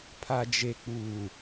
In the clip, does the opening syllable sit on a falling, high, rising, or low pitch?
low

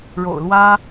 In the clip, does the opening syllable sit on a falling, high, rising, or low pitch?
low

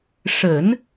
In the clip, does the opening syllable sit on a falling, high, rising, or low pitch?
low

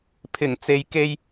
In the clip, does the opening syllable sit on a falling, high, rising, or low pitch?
low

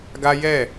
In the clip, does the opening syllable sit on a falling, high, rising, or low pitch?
high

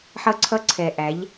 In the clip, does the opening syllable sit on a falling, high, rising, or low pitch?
high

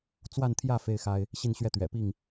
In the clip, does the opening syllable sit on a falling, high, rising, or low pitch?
falling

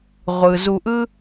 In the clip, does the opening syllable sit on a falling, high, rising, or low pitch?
low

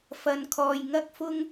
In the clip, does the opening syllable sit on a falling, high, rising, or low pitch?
low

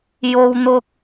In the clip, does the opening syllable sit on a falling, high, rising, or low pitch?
high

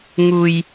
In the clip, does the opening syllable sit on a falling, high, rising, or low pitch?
low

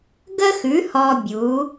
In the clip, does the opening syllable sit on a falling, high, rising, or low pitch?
high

